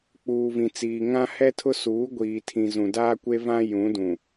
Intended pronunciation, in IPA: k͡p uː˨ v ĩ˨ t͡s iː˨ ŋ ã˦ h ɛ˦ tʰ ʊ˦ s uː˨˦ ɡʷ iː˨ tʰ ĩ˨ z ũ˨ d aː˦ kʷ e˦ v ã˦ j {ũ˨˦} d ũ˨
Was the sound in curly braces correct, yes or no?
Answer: yes